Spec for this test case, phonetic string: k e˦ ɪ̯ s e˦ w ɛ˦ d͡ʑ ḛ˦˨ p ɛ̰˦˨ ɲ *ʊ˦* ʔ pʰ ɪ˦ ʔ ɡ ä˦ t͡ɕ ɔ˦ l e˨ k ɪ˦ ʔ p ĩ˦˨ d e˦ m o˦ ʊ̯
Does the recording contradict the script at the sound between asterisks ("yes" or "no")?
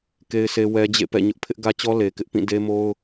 no